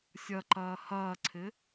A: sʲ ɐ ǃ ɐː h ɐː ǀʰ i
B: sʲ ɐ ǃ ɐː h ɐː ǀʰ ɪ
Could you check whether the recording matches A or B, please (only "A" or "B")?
B